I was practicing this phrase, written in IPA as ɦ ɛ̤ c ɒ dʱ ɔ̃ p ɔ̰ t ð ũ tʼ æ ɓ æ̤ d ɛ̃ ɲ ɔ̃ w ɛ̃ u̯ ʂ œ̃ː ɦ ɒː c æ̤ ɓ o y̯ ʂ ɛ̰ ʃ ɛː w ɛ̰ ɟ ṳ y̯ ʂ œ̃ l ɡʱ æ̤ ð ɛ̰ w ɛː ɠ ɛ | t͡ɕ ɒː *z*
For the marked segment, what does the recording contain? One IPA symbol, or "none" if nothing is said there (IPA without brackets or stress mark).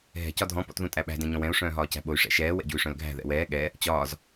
z